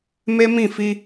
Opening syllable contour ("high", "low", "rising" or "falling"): high